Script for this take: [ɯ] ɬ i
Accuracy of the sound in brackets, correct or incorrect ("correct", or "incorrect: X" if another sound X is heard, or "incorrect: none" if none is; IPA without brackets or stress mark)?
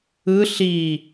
correct